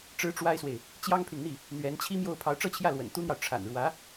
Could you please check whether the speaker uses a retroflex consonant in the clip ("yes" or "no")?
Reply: yes